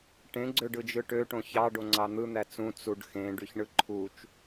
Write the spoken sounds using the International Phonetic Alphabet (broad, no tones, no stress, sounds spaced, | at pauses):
ʈ ẽ ɡ͡ǀ ø ɖ ɯ d͡ʒ ɯ ʈ ø ʈ õ ç ɑ ɖ o ŋ͡ǀ ɑ n̪ ɯ n̪ æ t͡s ũ t͡s u ɖ x ẽ ɖ y ç ɳ ɯ ǃʰ u t͡ʃ